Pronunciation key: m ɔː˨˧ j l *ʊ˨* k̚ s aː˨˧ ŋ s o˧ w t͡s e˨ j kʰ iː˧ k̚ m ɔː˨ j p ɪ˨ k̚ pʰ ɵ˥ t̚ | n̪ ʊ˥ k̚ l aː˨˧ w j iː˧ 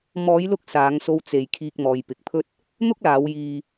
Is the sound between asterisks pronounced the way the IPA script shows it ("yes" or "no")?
no